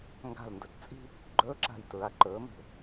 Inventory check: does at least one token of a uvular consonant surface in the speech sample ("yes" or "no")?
no